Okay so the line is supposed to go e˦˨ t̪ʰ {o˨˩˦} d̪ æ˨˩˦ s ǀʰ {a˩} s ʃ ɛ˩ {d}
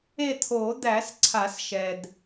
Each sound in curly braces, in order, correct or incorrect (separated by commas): correct, incorrect, correct